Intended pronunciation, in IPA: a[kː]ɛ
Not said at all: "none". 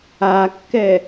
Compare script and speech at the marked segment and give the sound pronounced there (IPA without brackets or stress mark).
kː